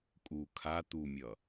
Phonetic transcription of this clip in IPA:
kʼ u kʰ a t̪ u mʲ ʌ

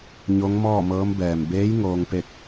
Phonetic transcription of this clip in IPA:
ɲ o˧˥ ŋ m ɔː˥˨ m ɤː˧˥ m b ɛː˩ m b eː˧˥ j ŋ oː˧ ŋ p e˥˨ k̚

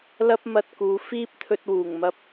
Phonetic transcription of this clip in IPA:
l ɐ˥ p̚ m ɐ˧ t̚ k uː˨˧ f iː˥ p̚ t̪ʰ ɵ˧ t̚ w uː˨˩ ŋ m ɐ˧ p̚

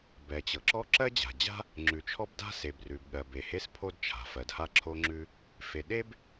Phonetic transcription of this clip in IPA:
b ɛ˩ t͡ɕ ɤ˩ ǁ ɔ˥ ǁ ɜ˥ d͡ʑ a̤˩ d͡ʑ a̤˥ | ŋ͡ǁ ʉ˩ t͡ʃʰ ɔ˥ b d a̤˥ s e˩ b r ʉ˩ b ɠ ɜ˩ b e˩ h e˥ s pʰ o˥ d t͡ʃʰ a̤˩ f ɜ˩ d h a˥ ǁʰ o˥ ŋ͡ǁ ʉ˥ | f e˩ ɗ e˥ b

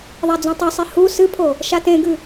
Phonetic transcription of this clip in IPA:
ðˤ a d͡z ũ tˤ ʉ sˤ i h u s ɨ pʰ o | ʃ a t ẽ ɡ ʉ

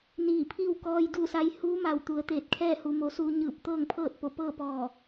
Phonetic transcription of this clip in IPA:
n iː˧˩ pʰ iː˥˨ w k ɔː˧ j d u˥˨ s a˧˥ j h uː˧˥ m a˧˩ w t̪ u˩˧ ə̯ t̪ eː˧˩ t̚ kʰ ɛː˥˨ h u˩˧ m o˩˧ s uː˧ ɲ ɯː˧˩ p̚ t̪ ɤː˥˨ ŋ pʰ ɤː˥˨ t̚ p o˧˩ p ɤː˥˨ p ɔː˧˩

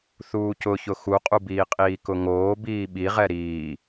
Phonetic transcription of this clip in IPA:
θ uː c ʊ ç ʊ x u qʼ u b iː qʼ iː k ʊ ŋ oː b iː ɓ i ʁ ɛ ɾ iː

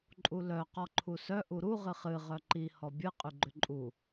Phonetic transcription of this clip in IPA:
ǃʼ u l œ q ɔ ǃʰ u s œ ʔ u ɾ u ʁ ɨ χ ɨ ʁ œ ǃ i h ɔ bʲ ɨ qʼ y ɡ͡ǃ ʏ ǃʼ u

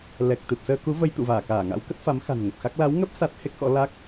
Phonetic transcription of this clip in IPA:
l ɛ˨˩ k̚ t̪ ɨ˨˩ p̚ s əː˧ k u˨˦ v ə˧ j t̪ ṵ˧˨ v aː˧˩ k aː˧˩ ŋ a̰˧˥ w k ə˦˥ t̚ f a˨˦ m x a̤˨˩ n ŋ ə˨˩ p̚ x a˦˥ k̚ l a˨˦ w ŋ ə˦˥ p̚ s a˦˥ t̚ h e˦˥ k̚ x ɔ̰˧˥ l a˦˥ k̚

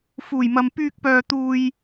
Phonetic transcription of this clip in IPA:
f uː˨˩ j m ɐ˨ m p yː˧ k̚ p œː˧ t̪ uː˧ j

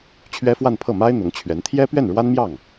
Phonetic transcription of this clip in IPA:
t͡ɕʰ ɥ ɛ˥ f w a˥˧ n pʰ ɤ˥˩ m a˥ ɪ̯ n̪ ʊ˧˥ ŋ t͡ɕʰ ɥ ɛ˧˥ n t̪ʰ j ɛ˥ p ɥ ɛ˥˩ n ɻ w a˥ n m j ɑ˥˩ ŋ

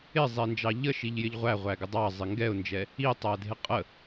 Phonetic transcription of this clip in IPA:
ɪ zˤ i n d͡ʒ ɑ ʎ ə ʃ i ʎ j ɪ ʎ ʁʷ æ ʁʷ æ ɡ ɪ dˤ ɑ zˤ ɪ ŋ ɡ ɛ ʊ̯ n d͡ʒ ɛ | i tˤ æ dʱ ɪ qʼ ə

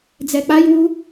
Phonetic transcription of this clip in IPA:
d͡z ɛ k͡p a j w u

